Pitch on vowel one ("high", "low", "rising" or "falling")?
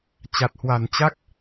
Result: low